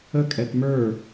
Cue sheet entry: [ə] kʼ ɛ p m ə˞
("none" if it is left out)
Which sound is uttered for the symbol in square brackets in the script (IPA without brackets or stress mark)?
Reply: ə